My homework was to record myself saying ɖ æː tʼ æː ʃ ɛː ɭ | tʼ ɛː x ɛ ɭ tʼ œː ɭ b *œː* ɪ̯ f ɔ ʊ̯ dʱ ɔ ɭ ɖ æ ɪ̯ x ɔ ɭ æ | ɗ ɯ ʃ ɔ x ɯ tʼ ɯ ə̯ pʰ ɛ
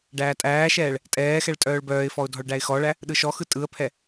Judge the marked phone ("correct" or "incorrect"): correct